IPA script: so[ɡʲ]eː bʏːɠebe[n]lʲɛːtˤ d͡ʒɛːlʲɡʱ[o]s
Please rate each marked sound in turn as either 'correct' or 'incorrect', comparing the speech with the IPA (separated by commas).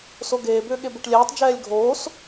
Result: incorrect, incorrect, incorrect